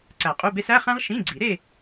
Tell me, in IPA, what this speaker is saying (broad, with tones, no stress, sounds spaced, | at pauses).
ǀ æ˨˩˦ qʼ u˧˥˧ b e˥ s æ˧˥˧ χ æ̃˥ ʁ ʃ ĩ˧˥˧ ɡ͡ǀ i˨˩˦ ɾ e˥˧